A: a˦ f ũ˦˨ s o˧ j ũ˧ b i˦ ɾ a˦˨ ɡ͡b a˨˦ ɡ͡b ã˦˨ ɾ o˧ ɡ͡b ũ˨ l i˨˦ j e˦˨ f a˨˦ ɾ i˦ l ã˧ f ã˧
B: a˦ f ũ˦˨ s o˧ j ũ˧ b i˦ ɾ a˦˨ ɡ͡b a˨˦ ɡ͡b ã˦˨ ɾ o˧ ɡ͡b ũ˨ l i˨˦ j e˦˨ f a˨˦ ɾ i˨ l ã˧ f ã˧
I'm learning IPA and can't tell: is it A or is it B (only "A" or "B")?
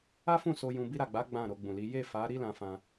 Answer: A